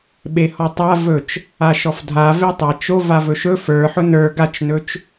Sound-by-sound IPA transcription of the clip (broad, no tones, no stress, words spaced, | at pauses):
ɓehɔtˤa vɵt͡ʃ | aʃɔfdʱa vetˤa t͡ʃo vavɵʃɵ fə˞ ħʊnə˞ ɡat͡ʃnɵt͡ʃ